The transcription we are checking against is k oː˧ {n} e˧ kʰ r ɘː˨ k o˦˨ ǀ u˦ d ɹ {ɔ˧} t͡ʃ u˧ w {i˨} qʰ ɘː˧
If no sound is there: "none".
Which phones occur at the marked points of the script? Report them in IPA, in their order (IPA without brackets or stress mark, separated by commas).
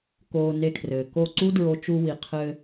n, o˧, i˨